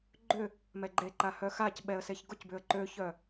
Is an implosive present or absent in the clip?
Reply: present